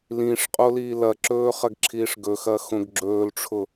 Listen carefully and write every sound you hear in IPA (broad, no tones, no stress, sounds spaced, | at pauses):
l ĩ ʂ qʼ o l iː l ɐ ǁ ɵː χ ɐ ɡ ǁʰ iː ʂ ɡ ɵ x ɐ x õ ɡ ɡ͡ǁ ɵː l ʈ͡ʂʰ ʊ